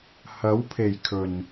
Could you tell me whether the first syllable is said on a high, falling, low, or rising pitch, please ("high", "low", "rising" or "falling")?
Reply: rising